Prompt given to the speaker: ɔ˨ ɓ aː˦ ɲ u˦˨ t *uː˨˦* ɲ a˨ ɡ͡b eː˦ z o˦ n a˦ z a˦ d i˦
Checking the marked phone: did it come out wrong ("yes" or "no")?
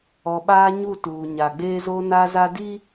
yes